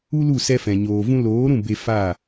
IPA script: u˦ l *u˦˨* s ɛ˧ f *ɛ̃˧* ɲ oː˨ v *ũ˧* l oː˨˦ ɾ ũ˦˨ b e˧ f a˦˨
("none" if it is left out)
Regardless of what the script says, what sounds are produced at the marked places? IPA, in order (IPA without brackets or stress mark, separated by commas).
u˦˨, ɛ̃˨, ũ˧